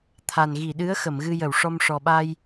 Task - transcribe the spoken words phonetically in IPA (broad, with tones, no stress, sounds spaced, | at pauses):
t̪ʰ a˨˩ n ɣ i˨˩˨ ɗ ɨ˧˥ ə̯ x ə˨˩˨ m ɣ ɨ˧ j ə˨˩˨ w ʂ ɔ˧ m ʂ ɔ˨˩ ɓ a˧ j